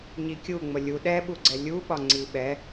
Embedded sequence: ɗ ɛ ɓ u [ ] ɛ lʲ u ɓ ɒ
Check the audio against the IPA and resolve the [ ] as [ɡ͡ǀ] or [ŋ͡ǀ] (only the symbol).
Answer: ɡ͡ǀ